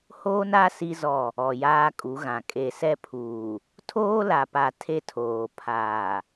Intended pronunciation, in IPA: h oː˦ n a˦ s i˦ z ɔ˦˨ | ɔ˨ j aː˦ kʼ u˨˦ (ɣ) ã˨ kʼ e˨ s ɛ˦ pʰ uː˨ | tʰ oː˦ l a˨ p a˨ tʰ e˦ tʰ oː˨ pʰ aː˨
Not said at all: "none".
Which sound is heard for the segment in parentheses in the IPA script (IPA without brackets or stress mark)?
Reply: ɣ